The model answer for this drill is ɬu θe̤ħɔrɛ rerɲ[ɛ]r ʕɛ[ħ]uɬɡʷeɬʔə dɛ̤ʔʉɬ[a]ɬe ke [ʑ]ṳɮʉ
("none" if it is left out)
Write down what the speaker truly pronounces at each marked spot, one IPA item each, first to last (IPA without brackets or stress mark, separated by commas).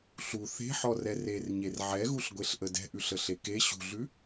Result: e, ɣ, ə, ɕ